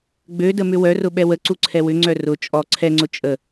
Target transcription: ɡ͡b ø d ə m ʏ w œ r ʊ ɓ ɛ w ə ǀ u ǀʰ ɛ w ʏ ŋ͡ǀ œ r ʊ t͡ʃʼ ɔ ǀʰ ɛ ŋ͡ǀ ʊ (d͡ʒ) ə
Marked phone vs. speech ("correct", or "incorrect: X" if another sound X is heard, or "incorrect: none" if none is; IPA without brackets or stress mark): incorrect: t͡ʃʼ